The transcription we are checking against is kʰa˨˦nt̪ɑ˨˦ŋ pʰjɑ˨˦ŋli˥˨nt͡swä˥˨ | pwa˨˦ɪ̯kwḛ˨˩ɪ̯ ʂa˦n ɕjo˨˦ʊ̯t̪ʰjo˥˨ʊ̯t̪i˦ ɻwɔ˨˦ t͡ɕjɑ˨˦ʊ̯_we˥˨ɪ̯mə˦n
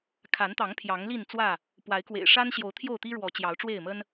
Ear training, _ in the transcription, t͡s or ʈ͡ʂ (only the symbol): ʈ͡ʂ